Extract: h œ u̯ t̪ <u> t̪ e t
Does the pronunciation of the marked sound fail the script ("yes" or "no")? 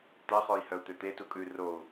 yes